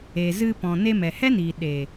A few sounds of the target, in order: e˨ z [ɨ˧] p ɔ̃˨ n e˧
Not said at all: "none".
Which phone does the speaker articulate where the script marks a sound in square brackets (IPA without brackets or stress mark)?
ɨ˧